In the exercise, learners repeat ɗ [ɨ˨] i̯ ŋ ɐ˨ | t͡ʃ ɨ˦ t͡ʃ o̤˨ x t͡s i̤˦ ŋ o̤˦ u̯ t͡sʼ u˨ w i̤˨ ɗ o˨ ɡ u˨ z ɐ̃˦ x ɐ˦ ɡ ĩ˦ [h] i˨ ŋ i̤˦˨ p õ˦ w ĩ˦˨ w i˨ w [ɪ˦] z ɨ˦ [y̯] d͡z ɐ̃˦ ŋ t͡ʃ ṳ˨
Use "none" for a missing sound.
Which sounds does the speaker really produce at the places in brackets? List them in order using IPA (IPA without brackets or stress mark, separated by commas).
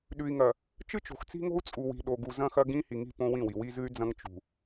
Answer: ʉ˨, h, i˦, y̯